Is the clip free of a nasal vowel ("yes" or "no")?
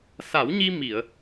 yes